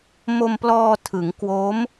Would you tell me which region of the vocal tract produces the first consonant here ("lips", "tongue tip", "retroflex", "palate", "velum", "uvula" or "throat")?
lips